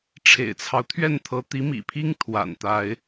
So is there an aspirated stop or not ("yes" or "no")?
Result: yes